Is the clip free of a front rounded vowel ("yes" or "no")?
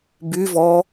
no